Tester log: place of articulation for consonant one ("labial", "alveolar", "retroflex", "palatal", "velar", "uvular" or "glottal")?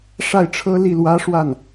retroflex